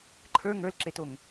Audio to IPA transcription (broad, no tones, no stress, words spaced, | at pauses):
ǃʰə˞ ŋə˞lǁetoŋ